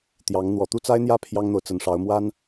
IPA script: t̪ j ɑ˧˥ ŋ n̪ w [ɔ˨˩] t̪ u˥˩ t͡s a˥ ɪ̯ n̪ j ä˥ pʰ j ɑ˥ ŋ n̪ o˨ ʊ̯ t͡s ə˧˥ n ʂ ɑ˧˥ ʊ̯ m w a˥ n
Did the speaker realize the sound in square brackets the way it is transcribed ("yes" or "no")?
yes